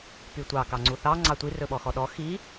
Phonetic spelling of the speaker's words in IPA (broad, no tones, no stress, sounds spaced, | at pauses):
p y tʷ ɑ k ɑ ŋ͡ǀ u θ ɑ ŋ͡ǀ ɑ tʷ i r ɵ ɓ ɔ x ɔ ɗ ɔ x i